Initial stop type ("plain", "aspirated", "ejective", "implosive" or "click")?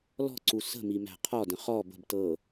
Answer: click